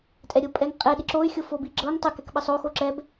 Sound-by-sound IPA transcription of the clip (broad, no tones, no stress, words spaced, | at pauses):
tʼɛɾʲɤ pʼɛŋqʼɛ ɗiǁoy̯xʲo fobi ɡ͡ǁɤŋ tˤɤkɛkɓɤsˤ oxo ǁɛb